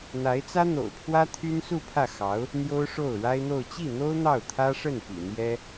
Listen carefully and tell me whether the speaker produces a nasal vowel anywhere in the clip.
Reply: no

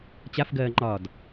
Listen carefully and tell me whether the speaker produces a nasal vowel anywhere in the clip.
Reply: no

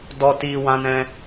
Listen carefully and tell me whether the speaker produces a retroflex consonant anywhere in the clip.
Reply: no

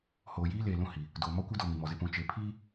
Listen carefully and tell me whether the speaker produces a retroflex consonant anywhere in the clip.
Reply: no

